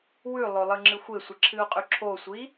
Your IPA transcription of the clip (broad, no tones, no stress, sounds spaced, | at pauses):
w ʉ lˠ ɵ lˠ ɨ ŋ͡ǁ ɨ xʷ e sʷ ɨ ǁʰ ɨ u̯ qʼ ʉ ǁʰ o sʷ i